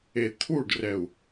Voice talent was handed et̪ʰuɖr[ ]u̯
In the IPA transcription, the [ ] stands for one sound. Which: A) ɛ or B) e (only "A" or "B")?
A